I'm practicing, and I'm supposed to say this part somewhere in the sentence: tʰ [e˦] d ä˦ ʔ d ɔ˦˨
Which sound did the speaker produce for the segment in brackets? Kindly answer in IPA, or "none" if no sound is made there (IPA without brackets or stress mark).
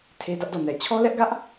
e˦